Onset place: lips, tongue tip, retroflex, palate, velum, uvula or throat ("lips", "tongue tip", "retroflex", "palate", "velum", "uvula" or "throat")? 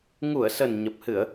velum